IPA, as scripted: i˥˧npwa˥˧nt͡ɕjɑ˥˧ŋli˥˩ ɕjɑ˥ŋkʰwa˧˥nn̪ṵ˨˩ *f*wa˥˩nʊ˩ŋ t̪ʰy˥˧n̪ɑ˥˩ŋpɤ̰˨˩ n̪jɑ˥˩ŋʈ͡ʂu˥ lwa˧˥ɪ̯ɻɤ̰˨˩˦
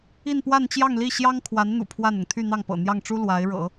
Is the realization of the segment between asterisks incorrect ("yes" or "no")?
yes